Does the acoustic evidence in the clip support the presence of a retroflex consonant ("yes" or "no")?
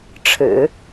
yes